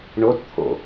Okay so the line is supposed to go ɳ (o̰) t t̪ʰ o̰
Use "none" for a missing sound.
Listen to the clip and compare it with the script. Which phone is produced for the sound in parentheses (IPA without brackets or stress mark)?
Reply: o